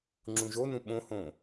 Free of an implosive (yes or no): no